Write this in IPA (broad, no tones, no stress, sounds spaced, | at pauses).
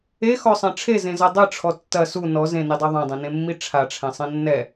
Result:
e x ɔ sˤ ɛ̃ ʈ͡ʂʰ e z ẽ z ɐ dˤ ɨ ʈ͡ʂʰ ɔ tː ɐ s u n ɔ z ẽ n i dˤ e ðˤ ɛ̃ dˤ ẽ n ẽ mː i ʈ͡ʂʰ a ʈ͡ʂʰ ɛ̃ sˤ ẽ nː ɛ